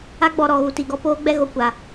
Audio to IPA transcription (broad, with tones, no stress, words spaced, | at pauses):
a˦ɡ͡bɔ˨ɾɔ˨ ɣu˨ti˨ɡɔ˦ poː˦ɡ͡bɛ˦ɣo˨ kʷa˨